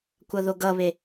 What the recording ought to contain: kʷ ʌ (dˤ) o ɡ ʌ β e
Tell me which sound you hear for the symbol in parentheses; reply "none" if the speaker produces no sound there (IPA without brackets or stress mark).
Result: ð